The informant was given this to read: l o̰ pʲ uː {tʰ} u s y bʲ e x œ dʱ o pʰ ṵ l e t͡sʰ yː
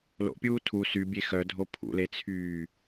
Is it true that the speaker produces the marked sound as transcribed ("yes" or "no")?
yes